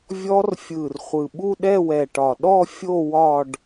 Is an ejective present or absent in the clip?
absent